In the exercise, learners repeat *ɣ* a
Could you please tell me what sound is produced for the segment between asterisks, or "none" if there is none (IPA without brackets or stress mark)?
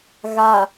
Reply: ɣ